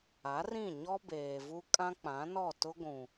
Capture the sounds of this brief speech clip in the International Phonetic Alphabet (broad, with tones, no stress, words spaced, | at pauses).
a˨˦rĩ˦˨ɲɔ˦ beː˨vu˦ kʼã˦k͡pã˨˦nɔ˦˨tʊ˦ ɡʷũ˨